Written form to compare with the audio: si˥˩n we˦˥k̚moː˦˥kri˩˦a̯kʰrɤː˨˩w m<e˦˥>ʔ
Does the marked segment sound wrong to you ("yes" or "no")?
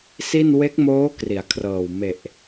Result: yes